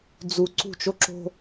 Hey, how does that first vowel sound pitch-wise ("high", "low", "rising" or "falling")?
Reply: low